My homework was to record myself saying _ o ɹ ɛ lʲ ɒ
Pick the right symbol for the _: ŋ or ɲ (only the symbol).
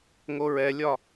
ŋ